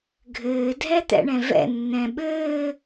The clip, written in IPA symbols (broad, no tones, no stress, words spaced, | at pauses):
ɡʱɘː dʱɛt̪ɛ̰ɳɛ̃vɛ̰ nːɛ̃ɓɘː